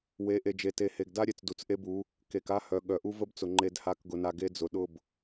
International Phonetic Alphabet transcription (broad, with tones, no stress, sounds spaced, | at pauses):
w e˨˦ ʔ e˨ d͡ʒ e˨ t e˨ h e˨ ɡ d a˦ ɾʲ e˨ t͡s d u˨ t͡s ʔ e˦ b u˨˦ | k e˨ k a˦ h œ˨ ɠ œ˨ ʔ u˦ v ə˦ b t͡s ʊ˨ ŋ͡ǃ e˨ d h a˨˦ k ɡ ʊ˨ n a˨ ɡ e˦ d͡z ʊ˨ ɗ ʊ˦˨ b